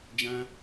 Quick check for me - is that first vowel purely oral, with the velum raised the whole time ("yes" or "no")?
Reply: no